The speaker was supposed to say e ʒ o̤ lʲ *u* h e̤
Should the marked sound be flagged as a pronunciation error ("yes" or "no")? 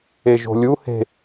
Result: no